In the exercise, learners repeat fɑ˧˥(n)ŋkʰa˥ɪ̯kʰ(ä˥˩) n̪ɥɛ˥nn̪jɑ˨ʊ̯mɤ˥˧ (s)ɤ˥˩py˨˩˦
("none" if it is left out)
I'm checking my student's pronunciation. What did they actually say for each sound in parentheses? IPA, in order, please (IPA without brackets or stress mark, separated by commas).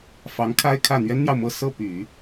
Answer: none, ä˥˩, s